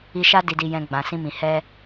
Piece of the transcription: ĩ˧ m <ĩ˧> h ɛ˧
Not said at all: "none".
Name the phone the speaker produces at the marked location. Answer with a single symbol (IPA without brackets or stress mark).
ĩ˨